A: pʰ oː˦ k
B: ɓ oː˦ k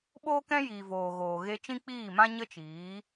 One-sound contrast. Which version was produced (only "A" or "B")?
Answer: B